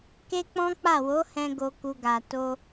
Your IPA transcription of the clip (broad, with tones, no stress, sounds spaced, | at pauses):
k e˦ k͡p ɔ̃˦ k͡p a˦˨ w o˨˦ h ɛ̃˧ ɡ o˧ k u˧ ɡ a˨ t o˧